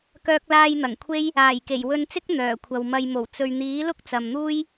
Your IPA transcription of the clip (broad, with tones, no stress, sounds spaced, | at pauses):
k œː˧ k̚ l aː˧ j n̪ ɐ˨˩ ŋ kʷʰ e˥ j | aː˨˩ j k e˨˩ j w ɵ˧ n t͡s ɪ˥ k̚ n̪ œː˨˩ kʷʰ ɐ˨ w m ɐ˨ j m o˨˩ w t͡s ɵ˨ ɥ n̪ iː˨˥ l ʊ˥ k̚ t͡s ɐ˨ m n̪ uː˥ j